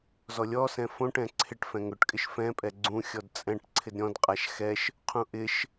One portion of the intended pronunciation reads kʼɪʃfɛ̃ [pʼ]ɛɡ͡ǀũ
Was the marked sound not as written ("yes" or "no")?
no